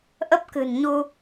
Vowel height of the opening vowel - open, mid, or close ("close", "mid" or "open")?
mid